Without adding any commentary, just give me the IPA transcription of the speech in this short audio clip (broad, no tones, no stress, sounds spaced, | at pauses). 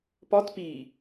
p ɒ t p i